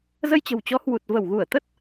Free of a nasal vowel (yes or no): yes